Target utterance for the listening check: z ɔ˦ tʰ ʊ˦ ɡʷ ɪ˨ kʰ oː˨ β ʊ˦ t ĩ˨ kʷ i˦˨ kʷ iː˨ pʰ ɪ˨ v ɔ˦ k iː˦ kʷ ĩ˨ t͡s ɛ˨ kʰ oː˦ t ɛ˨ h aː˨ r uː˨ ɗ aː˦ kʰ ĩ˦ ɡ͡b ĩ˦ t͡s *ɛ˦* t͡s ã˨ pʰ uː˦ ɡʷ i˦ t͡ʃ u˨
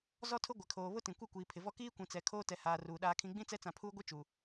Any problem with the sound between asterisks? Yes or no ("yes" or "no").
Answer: no